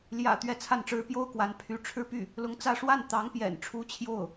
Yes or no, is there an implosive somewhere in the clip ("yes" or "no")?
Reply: no